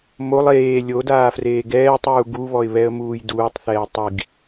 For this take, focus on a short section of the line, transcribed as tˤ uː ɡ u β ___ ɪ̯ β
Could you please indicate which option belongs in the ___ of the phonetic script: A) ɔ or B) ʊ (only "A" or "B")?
A